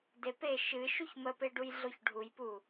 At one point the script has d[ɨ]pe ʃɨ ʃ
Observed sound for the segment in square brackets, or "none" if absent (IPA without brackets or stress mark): e